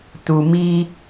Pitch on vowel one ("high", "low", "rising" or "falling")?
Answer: low